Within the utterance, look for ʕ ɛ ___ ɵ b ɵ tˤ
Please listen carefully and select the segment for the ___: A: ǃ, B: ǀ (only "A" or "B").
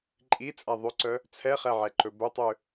A